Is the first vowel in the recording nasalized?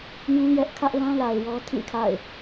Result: yes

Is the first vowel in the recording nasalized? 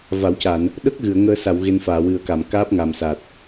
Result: no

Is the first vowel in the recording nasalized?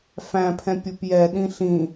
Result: yes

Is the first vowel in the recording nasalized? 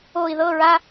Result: no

